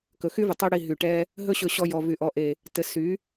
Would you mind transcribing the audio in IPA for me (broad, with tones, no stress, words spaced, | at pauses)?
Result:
kɵ˨xy˦vɘ˨ tˤy˧ɽi˨ ɦy˨ʈɛ˦ | ɦɵ˦ɕɵ˧ɕɔ˧ jɔ˨vy˨ ʔɔ˨ʔe˨ | tɘ˧ sy˨˦